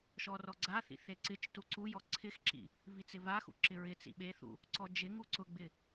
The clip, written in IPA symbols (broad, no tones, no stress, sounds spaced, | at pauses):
ʃ ɔ r ɔ ɡ͡ǀ a θ ḭ θ e ǀ ɪ t͡ʃ t u ǀ u j ɔ ǀʰ ɪ x ǁ ḭ | v i t͡s ɪ v a x ṵ ǁ ɪ ɹ ɪ t͡s ḭ ɓ e θ ṵ | ǀ ɔ d͡ʒ ɪ ŋ u ǀ ʊ ɡ͡b ɪ